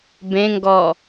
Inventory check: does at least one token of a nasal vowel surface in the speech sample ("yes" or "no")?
yes